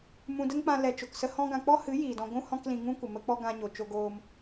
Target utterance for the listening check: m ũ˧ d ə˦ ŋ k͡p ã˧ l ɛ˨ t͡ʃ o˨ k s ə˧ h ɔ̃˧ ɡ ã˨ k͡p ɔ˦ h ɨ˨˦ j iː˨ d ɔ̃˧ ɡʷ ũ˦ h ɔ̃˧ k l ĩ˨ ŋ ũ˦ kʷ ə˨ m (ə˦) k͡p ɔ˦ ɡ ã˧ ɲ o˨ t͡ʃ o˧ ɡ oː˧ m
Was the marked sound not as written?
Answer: no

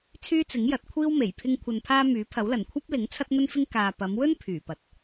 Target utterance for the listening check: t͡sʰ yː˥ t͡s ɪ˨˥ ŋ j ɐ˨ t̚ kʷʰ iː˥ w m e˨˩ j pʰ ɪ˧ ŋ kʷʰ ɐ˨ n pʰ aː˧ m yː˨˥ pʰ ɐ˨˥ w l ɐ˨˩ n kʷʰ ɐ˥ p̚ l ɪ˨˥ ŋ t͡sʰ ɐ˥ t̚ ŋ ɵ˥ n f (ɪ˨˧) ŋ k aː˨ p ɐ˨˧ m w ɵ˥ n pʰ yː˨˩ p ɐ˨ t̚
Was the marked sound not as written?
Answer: yes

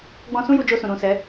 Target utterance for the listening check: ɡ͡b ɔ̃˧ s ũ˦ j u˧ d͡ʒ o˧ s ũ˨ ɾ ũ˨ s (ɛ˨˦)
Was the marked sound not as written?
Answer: no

